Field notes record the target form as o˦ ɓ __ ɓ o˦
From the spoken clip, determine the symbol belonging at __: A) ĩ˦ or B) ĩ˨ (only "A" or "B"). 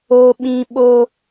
A